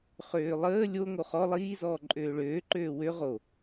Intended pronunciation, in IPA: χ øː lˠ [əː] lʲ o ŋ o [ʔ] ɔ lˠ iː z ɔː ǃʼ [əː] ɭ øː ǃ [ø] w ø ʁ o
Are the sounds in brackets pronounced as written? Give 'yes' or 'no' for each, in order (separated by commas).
yes, no, no, no